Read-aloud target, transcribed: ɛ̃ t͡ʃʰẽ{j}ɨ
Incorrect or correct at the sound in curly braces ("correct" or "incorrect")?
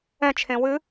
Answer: incorrect